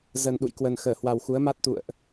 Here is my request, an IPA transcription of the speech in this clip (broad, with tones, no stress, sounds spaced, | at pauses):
z ə˨˩ n ɗ ṵ˧˨ j k w ə˨˩ n x əː˧˩ h w a˨˩ w x u˨˦ ə̯ m a˦˥ t̚ t̪ ṵ˧˨ ə̯ ʔ